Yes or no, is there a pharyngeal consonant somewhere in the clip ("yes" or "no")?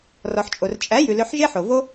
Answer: yes